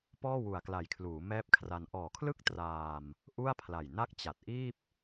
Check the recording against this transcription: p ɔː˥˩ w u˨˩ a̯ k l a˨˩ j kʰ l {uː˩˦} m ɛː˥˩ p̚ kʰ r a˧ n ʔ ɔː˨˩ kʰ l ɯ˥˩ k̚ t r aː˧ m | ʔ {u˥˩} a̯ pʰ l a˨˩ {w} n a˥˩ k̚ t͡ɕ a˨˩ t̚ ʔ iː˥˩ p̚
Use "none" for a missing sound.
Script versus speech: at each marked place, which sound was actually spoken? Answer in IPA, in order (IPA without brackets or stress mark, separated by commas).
uː˩˦, u˥˩, j